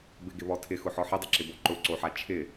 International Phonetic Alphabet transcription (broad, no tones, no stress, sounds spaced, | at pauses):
b ɪ ɡ ɪ β ɔ tʰ ɪ x ʊ ħ ɔ ħ i dˤ ɪ ǁ ɪ b o ǃ ʊ ǀ o ħ a t͡ʃʰ ɪ